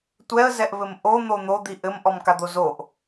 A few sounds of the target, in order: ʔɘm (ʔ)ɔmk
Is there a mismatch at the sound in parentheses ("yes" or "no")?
no